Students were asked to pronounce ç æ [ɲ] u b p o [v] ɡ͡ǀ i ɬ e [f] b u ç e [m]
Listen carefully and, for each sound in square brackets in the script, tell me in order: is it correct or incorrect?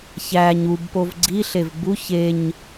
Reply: correct, correct, incorrect, incorrect

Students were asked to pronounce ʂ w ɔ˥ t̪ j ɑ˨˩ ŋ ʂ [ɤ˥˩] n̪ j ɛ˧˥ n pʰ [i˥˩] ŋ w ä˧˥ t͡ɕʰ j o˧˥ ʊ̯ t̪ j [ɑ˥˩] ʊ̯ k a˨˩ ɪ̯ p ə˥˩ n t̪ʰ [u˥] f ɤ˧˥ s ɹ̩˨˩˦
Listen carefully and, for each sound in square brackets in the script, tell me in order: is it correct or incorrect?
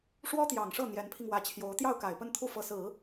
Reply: correct, incorrect, correct, correct

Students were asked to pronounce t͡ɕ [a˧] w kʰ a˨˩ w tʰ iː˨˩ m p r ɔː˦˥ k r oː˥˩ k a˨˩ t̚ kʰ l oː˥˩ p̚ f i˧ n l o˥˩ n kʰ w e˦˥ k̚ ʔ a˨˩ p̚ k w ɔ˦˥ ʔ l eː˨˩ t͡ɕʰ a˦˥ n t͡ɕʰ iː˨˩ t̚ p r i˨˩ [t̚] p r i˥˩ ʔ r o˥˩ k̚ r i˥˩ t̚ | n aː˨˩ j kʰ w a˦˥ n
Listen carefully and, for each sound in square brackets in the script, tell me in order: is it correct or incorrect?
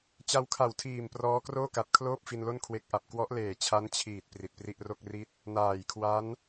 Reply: correct, correct

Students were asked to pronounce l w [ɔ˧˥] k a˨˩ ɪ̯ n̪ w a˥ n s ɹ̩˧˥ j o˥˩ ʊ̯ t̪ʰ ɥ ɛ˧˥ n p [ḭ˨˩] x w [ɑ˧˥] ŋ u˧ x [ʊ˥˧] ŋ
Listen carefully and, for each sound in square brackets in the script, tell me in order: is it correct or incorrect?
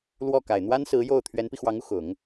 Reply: incorrect, incorrect, correct, incorrect

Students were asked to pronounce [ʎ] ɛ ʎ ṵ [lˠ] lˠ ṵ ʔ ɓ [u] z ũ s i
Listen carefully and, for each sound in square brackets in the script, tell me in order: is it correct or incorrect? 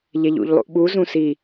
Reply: correct, incorrect, correct

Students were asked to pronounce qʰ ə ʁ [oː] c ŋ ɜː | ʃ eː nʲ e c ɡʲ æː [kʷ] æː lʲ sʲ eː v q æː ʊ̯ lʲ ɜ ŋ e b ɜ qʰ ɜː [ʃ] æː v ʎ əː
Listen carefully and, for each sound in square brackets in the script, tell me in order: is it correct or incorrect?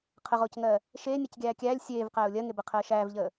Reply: correct, incorrect, correct

